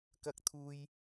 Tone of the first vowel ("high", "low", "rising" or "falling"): high